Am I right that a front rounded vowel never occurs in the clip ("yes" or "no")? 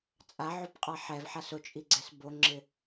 yes